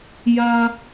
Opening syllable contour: high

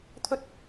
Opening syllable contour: high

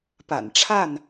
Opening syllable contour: low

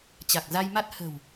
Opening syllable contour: low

